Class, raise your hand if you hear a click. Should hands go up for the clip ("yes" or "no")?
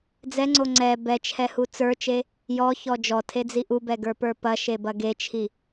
yes